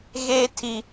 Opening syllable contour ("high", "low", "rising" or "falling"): high